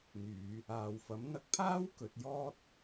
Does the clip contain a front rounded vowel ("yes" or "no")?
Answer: yes